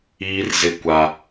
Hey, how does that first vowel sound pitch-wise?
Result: high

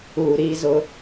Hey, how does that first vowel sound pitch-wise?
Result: low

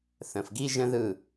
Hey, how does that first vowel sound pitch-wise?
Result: low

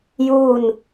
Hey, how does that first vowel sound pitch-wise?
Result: falling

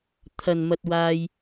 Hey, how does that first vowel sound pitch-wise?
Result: low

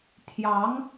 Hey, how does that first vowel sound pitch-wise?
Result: rising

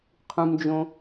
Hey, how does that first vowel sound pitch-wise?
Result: low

